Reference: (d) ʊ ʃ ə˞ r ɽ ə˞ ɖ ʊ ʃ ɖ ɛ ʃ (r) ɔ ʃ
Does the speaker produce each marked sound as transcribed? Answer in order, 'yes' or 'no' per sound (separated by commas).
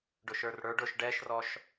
no, yes